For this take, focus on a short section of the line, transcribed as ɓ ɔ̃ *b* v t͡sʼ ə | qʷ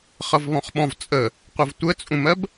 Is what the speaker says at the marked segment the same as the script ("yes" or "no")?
no